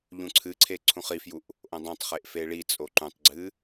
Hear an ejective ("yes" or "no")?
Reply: yes